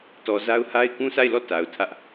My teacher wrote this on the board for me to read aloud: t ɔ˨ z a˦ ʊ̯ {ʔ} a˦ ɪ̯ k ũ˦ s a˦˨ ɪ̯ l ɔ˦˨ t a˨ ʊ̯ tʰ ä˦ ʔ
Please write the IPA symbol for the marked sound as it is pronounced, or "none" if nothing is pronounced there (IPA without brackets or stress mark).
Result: h